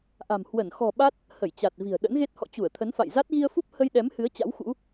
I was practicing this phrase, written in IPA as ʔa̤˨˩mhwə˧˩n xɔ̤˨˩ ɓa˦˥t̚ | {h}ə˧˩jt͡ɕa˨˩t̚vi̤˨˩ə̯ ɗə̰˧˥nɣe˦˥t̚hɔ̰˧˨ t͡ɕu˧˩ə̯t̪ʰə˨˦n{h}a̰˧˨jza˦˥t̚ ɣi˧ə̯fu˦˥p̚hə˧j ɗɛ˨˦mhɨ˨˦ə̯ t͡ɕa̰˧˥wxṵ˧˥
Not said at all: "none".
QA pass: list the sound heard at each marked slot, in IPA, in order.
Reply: h, f

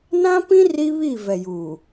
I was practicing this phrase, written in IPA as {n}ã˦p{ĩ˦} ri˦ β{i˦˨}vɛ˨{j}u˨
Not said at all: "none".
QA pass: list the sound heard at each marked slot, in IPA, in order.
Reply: n, ĩ˦, i˦˨, j

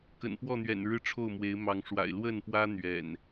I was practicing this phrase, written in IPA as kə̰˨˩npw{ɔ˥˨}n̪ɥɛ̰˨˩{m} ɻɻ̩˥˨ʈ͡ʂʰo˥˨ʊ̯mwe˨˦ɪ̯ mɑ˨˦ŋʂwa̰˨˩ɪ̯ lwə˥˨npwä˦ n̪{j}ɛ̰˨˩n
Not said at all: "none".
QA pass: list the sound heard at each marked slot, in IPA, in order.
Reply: ɔ˥˨, n, ɥ

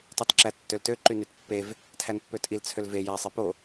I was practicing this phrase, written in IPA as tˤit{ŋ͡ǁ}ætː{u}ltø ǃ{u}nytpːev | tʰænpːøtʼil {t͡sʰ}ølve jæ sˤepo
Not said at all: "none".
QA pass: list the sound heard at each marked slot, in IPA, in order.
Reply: ǁ, ø, y, t͡sʰ

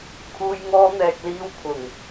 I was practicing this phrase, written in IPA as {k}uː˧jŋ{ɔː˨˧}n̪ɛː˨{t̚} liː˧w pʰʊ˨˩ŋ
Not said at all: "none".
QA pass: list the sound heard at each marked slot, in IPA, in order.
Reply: kʰ, ɔː˧, k̚

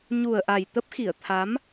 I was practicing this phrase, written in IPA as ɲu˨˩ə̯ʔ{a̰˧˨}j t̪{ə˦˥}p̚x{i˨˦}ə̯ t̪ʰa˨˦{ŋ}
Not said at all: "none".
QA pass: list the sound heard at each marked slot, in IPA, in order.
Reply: a˨˩, ə˦˥, i˧˩, m

